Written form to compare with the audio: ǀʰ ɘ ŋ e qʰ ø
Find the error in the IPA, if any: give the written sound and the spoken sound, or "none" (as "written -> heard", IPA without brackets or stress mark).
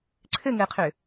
e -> ɘ